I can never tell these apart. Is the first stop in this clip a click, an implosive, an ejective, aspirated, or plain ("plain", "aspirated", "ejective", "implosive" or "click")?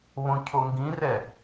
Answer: aspirated